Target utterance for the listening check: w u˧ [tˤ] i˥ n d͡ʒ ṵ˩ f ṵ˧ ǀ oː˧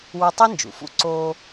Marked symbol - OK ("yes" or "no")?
yes